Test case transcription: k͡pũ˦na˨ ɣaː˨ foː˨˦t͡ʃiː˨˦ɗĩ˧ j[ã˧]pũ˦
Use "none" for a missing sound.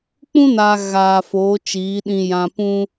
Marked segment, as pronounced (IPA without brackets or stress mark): ã˧